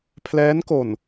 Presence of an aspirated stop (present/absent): present